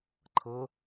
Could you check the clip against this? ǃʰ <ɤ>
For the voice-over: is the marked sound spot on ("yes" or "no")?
yes